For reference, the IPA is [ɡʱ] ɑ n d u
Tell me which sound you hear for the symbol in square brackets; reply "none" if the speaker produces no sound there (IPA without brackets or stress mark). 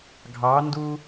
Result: ɡʱ